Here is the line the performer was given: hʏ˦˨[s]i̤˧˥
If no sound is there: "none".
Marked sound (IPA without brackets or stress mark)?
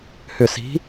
s